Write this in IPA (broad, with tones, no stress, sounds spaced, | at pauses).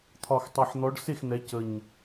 t̪ʰ ɒ˨˩ x tˤ ɛ˨˩ ħ n̪ ɔ˨˦ ɖ s e˥˩ x n̪ ɛ˨˦ c ə˨˩ ɲ